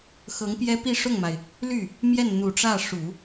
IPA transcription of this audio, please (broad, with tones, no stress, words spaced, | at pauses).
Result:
xɤ˧˥ŋpjɛ˥ pi˥˧ʂʊ˥˩ŋma˩ɪ̯ | ly˥˩ | mjɛ˥˩nn̪u˨˩ʈ͡ʂä˥˩ ʂu˨˩˦